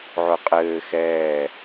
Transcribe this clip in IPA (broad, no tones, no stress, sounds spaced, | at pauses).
ʕ ʊ qʼ ɘː x ɛː